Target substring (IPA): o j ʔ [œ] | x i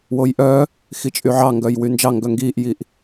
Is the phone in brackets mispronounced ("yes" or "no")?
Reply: no